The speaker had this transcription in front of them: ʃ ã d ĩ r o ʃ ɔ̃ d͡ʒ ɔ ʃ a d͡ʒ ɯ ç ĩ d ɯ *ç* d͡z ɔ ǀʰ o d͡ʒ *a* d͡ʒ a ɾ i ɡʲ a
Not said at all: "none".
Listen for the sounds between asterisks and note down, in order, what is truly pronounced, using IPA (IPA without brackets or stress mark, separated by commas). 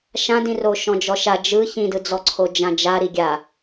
none, ã